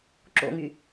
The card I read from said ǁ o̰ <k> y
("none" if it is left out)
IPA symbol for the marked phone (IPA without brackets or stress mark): ŋ